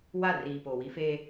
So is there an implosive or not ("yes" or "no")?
no